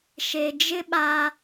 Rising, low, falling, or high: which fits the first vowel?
low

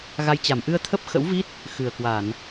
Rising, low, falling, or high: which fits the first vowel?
rising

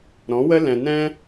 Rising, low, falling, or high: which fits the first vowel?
rising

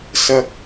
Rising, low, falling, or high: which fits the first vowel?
high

